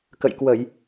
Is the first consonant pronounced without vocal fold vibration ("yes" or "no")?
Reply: yes